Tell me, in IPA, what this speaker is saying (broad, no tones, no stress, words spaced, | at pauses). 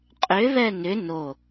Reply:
qʼʏ βɛnʏ no